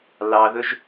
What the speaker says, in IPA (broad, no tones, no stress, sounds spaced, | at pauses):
l ɑ ð ɵ ʒ